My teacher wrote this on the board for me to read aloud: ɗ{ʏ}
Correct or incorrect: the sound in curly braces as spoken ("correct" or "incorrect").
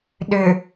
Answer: correct